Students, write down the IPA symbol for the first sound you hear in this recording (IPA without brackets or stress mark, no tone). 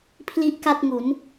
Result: pʰ